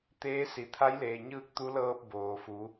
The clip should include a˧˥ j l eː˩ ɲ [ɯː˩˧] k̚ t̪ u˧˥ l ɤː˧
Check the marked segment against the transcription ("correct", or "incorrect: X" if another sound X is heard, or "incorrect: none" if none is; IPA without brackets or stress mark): incorrect: ɯː˧